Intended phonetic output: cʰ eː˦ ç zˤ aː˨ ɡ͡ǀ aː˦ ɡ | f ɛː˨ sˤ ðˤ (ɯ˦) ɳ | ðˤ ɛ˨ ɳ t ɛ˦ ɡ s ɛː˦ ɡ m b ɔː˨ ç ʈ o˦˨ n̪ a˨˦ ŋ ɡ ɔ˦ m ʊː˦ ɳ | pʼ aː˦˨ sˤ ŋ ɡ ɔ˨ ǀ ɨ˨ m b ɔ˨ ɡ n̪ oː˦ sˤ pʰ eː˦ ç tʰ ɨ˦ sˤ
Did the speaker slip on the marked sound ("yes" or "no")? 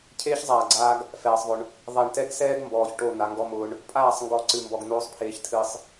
yes